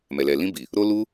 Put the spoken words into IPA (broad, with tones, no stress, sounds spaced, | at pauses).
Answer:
m ɛ˨ l ɛ˨ l ĩ˧ b i˨ | ɾ o˦ l u˦